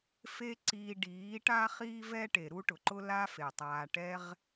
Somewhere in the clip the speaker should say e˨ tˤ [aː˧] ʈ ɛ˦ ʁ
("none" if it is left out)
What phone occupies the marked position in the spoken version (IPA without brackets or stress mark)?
aː˧